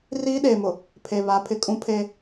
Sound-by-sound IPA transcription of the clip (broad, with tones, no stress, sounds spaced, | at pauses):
r iː˦ ɗ eː˨ m ʊ˨ | pʰ e˨ β a˨˦ pʰ ɪ˨ kʼ ũ˦ pʰ eː˦